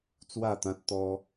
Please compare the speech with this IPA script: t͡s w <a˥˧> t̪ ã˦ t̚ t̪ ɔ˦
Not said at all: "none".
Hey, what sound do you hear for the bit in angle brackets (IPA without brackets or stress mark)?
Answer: a˥˧